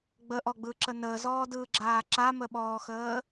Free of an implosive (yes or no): no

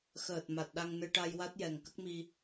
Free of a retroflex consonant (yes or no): no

